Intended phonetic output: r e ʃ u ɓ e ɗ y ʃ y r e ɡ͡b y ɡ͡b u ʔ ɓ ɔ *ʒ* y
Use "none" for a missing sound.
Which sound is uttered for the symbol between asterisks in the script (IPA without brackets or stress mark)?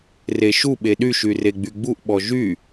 ʒ